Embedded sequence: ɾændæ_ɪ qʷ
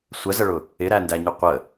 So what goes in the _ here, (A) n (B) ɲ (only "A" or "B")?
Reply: B